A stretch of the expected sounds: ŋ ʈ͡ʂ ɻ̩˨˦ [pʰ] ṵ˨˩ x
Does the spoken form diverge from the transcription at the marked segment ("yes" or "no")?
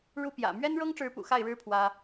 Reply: yes